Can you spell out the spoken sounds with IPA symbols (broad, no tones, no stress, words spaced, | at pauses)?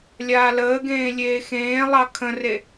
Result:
lʲaːləːɡẽː lʲeːxẽːlˠɑ kʰə̃re